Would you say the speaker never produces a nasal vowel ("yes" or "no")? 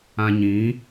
no